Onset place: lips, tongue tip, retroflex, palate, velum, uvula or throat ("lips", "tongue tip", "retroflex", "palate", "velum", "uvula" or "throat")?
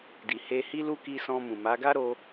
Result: tongue tip